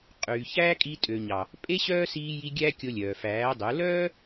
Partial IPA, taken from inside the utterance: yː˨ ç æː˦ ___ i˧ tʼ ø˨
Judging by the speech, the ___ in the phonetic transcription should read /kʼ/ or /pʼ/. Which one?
kʼ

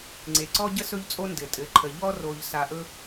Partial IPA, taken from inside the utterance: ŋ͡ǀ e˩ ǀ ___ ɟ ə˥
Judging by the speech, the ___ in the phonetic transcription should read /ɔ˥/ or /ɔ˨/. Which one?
ɔ˥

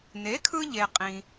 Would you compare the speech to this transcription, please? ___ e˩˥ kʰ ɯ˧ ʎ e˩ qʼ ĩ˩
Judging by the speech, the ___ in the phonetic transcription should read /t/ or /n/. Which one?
n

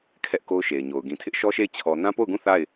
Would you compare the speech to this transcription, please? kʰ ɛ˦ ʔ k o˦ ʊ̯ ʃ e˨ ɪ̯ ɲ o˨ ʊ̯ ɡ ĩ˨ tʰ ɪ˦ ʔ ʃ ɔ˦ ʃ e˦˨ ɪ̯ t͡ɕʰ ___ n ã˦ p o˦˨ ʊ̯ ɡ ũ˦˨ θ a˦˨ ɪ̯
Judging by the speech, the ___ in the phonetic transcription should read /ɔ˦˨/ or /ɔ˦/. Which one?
ɔ˦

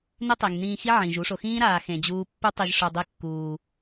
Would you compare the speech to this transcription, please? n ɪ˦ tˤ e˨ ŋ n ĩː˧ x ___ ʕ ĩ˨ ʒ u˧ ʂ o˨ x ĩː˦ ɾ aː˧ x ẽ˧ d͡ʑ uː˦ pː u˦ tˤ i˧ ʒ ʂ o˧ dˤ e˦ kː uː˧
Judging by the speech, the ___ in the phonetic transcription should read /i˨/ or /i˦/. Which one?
i˦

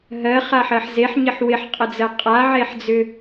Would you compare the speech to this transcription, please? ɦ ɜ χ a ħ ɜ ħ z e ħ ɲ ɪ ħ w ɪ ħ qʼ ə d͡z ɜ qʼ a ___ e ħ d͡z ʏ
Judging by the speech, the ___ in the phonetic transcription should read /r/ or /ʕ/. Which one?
ʕ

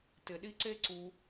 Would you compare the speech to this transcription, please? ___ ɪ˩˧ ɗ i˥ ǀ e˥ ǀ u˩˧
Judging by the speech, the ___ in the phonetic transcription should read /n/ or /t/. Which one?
t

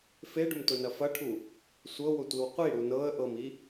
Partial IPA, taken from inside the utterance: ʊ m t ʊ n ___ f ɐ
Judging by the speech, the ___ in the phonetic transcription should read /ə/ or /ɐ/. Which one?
ɐ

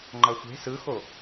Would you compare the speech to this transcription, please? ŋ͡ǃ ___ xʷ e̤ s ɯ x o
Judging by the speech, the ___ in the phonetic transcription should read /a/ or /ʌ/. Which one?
ʌ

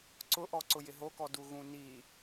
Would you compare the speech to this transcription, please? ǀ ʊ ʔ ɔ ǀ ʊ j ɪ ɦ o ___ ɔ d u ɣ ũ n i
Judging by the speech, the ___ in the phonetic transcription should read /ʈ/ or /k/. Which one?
k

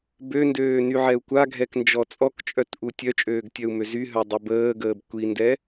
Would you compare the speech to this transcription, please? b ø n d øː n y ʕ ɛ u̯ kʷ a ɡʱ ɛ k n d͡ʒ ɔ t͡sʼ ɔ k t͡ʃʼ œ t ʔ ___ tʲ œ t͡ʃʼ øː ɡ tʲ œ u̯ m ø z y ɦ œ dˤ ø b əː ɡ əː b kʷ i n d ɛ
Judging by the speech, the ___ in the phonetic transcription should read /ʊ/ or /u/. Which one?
u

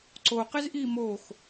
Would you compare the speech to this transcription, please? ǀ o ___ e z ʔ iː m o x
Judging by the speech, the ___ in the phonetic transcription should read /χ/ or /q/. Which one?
q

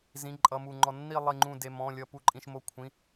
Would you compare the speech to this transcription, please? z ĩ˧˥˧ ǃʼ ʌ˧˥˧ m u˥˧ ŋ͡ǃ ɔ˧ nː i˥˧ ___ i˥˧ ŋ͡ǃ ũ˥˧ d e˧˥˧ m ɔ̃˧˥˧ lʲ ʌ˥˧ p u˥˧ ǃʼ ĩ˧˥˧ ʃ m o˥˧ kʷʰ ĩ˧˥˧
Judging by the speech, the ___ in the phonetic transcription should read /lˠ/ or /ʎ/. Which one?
lˠ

